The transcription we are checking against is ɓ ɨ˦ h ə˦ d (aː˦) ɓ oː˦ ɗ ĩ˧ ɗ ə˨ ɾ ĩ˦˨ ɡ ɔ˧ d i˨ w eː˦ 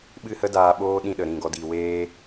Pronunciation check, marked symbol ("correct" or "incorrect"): incorrect